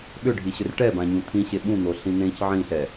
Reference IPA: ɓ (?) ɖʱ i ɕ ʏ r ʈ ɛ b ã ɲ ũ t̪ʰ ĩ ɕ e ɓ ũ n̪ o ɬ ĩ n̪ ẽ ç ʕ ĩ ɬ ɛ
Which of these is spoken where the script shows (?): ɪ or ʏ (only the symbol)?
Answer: ʏ